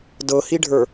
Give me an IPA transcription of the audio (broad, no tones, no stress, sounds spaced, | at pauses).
d ɤ h i ɖʱ ə˞